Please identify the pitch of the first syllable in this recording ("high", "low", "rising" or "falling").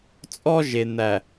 high